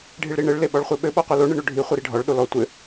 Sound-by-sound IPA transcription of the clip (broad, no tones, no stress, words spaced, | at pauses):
ɖʱiɭɾiɳɘɭ leɓɔɭχʷeɓɘ ɓɔqʷilo ɳɘɳoɖʱi χʷɘɾiɖʱɔɭ ɗolɔ tʷɘ